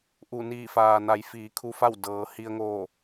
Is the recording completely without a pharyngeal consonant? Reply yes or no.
yes